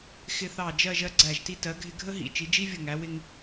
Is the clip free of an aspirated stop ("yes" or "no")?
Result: yes